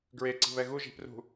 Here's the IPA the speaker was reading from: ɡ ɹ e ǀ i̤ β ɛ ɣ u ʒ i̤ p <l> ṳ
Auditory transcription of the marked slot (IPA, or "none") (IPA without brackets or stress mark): r